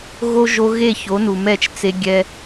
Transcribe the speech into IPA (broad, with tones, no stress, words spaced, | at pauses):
ɣo˦ ʒo˧ ɣe˦˨ço˨˦nu˨mɛ˦˨t͡ʃ t͡se˦ɡʲɛ˦